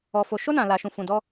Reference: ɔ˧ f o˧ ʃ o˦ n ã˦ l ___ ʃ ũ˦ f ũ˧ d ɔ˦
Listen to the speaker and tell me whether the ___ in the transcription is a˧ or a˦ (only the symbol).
a˦